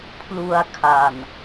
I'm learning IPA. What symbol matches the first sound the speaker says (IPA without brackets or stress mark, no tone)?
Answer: pʰ